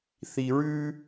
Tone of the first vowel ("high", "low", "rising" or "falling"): low